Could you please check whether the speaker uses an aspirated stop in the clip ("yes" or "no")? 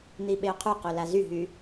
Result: yes